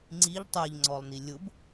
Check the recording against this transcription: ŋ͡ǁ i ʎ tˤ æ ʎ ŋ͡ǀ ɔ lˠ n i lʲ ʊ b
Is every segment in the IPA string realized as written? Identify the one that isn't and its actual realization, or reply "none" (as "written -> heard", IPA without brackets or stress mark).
ŋ͡ǁ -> ŋ͡ǀ